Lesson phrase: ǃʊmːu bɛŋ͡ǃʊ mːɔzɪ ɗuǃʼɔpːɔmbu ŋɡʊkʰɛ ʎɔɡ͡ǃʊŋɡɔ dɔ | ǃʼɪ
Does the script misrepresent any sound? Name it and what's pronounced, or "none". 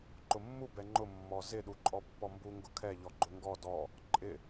none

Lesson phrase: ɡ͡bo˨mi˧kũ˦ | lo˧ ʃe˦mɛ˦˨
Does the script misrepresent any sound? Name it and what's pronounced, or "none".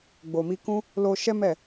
e˦ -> ɛ˦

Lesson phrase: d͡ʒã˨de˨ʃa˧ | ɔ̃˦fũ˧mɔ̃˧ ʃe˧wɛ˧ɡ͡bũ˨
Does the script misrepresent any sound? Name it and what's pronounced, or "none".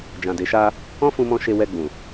none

